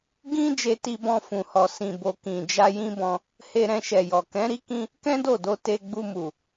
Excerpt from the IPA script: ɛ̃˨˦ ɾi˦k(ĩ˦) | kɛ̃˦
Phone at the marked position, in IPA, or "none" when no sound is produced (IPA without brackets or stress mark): ĩ˦